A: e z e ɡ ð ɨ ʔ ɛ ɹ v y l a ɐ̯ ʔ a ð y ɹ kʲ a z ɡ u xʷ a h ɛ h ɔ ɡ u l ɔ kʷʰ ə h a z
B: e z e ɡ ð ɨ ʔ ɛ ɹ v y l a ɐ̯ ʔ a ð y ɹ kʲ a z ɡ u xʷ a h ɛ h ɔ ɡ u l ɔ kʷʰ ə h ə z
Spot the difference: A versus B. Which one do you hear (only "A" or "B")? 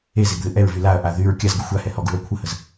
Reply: B